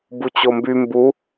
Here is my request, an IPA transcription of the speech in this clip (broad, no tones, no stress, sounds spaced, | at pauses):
b u t͡ɕ o m b y m b u